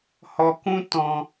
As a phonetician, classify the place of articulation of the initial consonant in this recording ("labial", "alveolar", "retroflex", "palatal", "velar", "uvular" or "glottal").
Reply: glottal